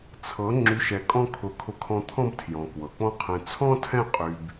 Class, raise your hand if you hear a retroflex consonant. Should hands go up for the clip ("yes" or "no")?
no